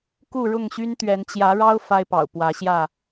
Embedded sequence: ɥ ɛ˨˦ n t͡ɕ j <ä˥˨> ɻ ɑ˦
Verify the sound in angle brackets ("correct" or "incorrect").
incorrect